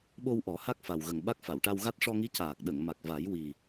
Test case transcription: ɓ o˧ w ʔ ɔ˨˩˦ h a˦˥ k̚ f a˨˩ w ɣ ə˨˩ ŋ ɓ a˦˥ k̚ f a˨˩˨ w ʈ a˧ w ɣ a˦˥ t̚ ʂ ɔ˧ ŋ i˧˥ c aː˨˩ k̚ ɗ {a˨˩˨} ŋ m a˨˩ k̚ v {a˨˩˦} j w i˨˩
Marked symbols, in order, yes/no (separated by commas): no, yes